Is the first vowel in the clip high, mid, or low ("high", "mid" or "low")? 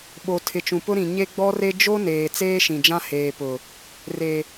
mid